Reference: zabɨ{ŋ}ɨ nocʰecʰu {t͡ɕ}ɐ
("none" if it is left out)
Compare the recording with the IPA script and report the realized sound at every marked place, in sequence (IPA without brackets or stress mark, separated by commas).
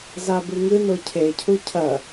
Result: ŋ, cʰ